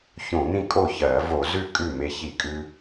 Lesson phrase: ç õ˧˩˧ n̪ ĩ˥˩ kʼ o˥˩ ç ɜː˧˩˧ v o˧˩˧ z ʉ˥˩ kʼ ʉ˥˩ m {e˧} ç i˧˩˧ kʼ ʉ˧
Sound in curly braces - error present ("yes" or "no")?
no